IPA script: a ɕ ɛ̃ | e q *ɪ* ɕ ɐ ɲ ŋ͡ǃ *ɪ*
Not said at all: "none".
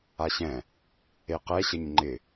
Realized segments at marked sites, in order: ɛ, ɪ

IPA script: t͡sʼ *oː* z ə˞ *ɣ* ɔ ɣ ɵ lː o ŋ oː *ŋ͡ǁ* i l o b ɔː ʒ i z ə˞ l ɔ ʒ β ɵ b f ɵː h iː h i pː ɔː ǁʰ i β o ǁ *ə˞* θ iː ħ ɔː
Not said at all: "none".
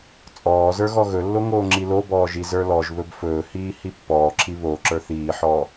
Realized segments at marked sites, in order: ɔː, ɣ, ŋ͡ǁ, ə˞

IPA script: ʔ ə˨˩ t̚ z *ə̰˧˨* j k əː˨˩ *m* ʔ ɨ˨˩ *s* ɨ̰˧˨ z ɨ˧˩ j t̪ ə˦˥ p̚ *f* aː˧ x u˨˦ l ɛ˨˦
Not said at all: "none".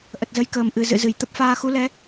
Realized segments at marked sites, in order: ə˨˦, m, z, f

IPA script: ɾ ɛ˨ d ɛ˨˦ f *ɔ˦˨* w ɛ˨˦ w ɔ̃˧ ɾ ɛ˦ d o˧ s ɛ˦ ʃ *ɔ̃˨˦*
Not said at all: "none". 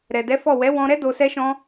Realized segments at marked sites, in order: ɔ˦˨, ɔ̃˦

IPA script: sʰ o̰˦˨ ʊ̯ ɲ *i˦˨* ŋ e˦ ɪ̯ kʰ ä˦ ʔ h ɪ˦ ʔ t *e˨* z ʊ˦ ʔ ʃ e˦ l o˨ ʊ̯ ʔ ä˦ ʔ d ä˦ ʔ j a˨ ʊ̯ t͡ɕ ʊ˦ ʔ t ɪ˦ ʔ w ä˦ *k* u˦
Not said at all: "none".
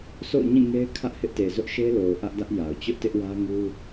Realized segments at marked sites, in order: ĩ˦˨, e˨, ŋ

